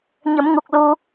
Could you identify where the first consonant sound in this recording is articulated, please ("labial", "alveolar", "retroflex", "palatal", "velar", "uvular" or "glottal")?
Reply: palatal